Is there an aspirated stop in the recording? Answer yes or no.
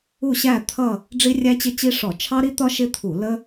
yes